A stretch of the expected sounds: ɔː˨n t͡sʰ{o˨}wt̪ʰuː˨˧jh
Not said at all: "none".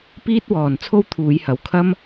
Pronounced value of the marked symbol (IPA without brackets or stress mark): o˥